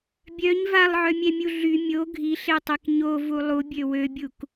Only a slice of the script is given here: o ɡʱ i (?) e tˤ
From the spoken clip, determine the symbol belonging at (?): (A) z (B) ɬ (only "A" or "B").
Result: B